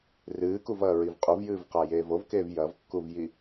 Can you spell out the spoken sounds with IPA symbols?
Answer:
rɨːkuvɐː ɹivqʼuvjɨːvqa jeːvovkeːv jɐvkːuvji

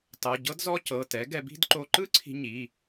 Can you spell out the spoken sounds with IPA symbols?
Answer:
tˤɤ˩˧˩ ɟɤ˥dzɔ˥ cɤ˩˧˩tɛ˩˥ ɡɛ˧bi̤˥d ǃo˧ǃɯ˥ǀʰi̤˧ ɲi˩˧˩

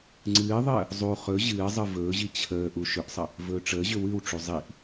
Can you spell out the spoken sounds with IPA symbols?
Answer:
ŋ͡ǀɨːðˤəː | zˤu χɵ ʑɨːzˤɯ vɵːʑi t͡ɕʰəː ʔuʃʏʔsˤə | vɵːʈ͡ʂəːʑʏ wɨwʈ͡ʂu zˤiʔ

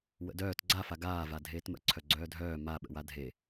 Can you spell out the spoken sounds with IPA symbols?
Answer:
wə̰dœːt ɡ͡ǀafa ɡaːva dʱeːtmə̰ǀʰœ ɡ͡ǀœːdʱœː ma ɓə̰wadʱe

